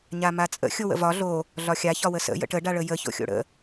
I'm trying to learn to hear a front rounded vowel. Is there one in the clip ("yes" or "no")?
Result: no